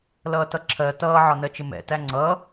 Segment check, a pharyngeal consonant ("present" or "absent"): present